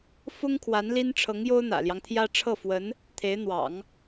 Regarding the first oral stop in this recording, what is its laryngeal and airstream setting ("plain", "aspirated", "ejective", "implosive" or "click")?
aspirated